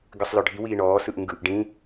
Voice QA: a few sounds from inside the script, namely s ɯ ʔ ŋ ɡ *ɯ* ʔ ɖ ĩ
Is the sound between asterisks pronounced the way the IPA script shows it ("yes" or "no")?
yes